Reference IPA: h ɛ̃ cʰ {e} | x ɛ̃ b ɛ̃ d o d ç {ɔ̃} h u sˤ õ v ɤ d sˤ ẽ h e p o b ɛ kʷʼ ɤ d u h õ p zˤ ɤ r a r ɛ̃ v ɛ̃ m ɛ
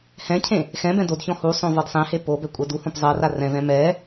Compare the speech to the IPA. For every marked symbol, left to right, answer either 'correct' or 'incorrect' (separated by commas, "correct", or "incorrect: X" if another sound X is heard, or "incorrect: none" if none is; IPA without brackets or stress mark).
incorrect: ẽ, correct